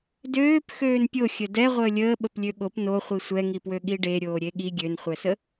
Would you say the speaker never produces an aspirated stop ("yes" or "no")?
yes